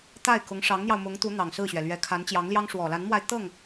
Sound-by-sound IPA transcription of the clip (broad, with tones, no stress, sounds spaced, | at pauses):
t̪ a˥˩ ɪ̯ k ʊ˧˥ ŋ ʂ ɑ˧˥ ŋ n̪ j ɑ˧ ʊ̯ m ʊ˧˥ ŋ t̪ u˧˥ n̪ ɑ˨˩ ŋ s ɹ̩˥˩ ɕ ɥ ɛ˩ l ɥ ɛ˧˥ kʰ a˧˥ n t͡ɕ j ɑ˧˥ ŋ l j ɑ˥ ŋ ʂ w ɔ˨˩ l a˧˥ n m w a˧ ɪ̯ t̪ ɤ˥˩ ŋ